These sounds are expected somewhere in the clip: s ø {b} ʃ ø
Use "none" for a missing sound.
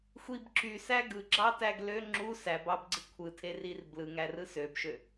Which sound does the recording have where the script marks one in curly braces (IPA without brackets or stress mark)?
b